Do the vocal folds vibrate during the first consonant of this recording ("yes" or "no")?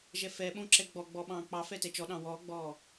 yes